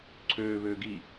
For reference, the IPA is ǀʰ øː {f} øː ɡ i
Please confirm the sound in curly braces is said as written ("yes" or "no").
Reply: no